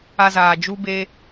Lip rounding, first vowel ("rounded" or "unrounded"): unrounded